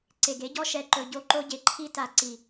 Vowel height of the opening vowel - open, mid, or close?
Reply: mid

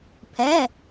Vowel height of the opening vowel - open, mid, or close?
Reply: mid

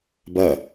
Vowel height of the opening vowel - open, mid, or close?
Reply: open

